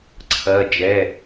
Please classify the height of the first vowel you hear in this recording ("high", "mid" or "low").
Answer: low